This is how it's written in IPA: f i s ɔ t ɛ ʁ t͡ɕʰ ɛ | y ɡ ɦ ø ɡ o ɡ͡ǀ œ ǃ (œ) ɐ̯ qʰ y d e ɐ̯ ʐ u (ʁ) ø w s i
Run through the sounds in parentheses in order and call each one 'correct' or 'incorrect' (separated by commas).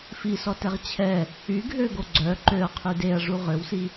incorrect, correct